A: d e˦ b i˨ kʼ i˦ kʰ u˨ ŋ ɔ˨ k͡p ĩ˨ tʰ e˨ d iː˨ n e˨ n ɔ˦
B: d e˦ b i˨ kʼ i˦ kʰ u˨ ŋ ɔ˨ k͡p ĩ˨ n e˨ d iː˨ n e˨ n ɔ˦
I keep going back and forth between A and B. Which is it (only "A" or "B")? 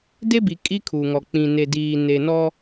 B